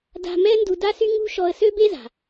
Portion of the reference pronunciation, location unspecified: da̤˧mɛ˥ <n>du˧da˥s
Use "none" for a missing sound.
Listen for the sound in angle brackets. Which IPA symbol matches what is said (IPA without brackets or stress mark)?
n